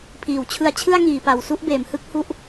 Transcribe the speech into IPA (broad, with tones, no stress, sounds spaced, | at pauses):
pʰ iː˨˩ w t͡ɕʰ ɯ˧ a̯ t͡ɕʰ ɯ˥˩ a̯ ŋ iː˩˦ p a˨˩ w s u˥˩ ʔ b eː˩˦ m h ɯ˥˩ k̚ h u˥˩ ʔ